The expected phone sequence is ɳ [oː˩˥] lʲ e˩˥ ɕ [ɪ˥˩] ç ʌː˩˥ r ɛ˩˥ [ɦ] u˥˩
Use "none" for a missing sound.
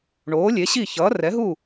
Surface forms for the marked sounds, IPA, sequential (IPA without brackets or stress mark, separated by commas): oː˩˥, i˥˩, ɦ